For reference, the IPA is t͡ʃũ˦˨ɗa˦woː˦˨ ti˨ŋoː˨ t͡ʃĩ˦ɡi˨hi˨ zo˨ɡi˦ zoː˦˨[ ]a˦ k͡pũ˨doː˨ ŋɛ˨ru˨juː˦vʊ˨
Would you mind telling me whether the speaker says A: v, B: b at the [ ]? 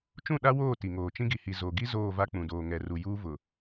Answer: A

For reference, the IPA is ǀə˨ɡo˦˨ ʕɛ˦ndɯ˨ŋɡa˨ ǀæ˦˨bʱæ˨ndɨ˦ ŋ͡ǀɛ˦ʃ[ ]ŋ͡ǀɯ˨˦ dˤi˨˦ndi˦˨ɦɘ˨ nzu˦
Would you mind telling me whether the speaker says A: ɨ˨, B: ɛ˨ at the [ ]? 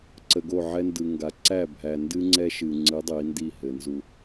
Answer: A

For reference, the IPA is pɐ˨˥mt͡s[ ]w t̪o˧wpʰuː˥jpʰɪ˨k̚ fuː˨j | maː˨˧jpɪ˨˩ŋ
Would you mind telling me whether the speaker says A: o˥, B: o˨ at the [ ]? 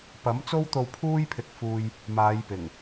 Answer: A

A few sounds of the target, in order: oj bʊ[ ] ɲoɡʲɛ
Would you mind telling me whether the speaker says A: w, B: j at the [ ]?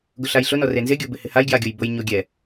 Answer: B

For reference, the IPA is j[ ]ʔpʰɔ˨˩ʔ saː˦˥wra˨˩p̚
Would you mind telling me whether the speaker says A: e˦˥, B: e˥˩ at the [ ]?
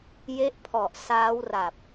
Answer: A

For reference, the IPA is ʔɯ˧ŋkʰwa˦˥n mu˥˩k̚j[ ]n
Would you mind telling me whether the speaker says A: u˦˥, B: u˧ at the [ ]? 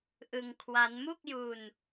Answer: B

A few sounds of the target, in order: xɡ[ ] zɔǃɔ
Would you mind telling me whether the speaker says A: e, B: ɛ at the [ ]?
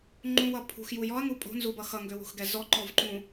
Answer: B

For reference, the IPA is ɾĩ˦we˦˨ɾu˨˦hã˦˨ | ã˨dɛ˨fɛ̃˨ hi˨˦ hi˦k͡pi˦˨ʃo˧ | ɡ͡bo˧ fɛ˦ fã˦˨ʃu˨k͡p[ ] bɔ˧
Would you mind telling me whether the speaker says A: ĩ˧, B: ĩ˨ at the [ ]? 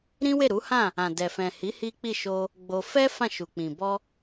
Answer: B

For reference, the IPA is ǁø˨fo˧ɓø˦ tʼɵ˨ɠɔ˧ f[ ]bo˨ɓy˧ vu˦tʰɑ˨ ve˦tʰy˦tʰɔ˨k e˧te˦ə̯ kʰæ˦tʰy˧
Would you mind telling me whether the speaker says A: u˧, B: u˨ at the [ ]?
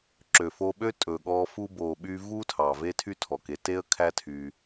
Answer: A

